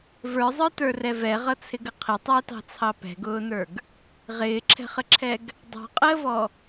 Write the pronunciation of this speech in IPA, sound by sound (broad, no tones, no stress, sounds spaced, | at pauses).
v ə˞ zˤ ə˞ t ə˞ r ɛ v ɛ ʁ ʌ t͡sʰ ɪ ɡ ə qʰ ɪ tˤ æ t ɑ̤ t͡sʰ ɑ p ɛ̤ ɡ ʊː n ə˞ ɡ | ʁ ɪː ǁʰ ɛ̤ χ ə ǁʰ ɛ ɡ | dˤ ɑ̤ qʼ əː v ɔ